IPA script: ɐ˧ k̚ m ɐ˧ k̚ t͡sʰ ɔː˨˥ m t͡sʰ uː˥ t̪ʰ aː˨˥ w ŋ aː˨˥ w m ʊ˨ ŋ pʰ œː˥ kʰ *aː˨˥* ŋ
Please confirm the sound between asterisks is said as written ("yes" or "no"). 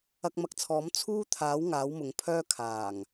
no